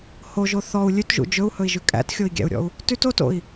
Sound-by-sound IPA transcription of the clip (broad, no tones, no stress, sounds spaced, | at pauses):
h o ʒ o θ ɔ u̯ lʲ ʉ t ʒ ṵ d͡ʒ ɵ u̯ h ɵ i̯ ʒ ʉ kʼ æ̰ t xʲ o i̯ ɡʲ æ̰ u̯ ɾʲ ɔ̰ u̯ | t ʉ t o t o̰ i̯